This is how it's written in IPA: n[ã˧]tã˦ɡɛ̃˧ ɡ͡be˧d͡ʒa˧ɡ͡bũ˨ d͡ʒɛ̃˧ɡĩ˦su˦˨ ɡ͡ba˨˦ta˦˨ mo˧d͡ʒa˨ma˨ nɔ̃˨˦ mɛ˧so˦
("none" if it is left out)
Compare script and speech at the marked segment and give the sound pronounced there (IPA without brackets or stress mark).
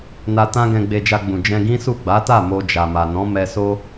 a˧